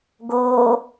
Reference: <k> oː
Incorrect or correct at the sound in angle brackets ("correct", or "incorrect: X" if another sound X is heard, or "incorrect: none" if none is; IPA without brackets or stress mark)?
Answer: incorrect: ɡ